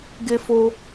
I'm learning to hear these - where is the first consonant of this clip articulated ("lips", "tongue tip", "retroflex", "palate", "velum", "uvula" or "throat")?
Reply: velum